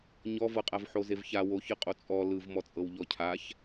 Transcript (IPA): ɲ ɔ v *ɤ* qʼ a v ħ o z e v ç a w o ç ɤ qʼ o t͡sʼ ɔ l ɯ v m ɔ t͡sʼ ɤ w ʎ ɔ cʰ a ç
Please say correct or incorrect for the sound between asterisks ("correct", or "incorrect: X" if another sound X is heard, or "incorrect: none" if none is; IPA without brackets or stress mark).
correct